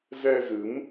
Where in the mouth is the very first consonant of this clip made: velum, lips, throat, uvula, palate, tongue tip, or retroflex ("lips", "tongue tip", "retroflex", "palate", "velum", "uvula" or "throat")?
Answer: tongue tip